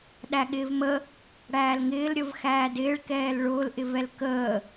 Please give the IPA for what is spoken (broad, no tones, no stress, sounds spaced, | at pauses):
ɗ æ ɠ ɪː v m ə | ɽ æː l ŋ ɪː l ɾʲ ə v x æː d ɪː ɭ k ɛː l ɭ ʊː l ʔ ɪ v ɛ l k əː